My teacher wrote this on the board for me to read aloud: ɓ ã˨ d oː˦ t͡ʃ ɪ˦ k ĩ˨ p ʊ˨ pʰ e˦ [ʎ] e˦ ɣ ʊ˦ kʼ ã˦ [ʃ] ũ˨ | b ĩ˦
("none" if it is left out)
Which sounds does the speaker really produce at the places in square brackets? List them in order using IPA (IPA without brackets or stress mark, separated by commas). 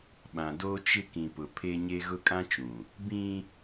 ɲ, t͡ʃ